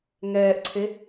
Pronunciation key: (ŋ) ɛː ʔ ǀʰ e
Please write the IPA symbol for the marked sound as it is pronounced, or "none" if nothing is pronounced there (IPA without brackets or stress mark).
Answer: ŋ